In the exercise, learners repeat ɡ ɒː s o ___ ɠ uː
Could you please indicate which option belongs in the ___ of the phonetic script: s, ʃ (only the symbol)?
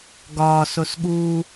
s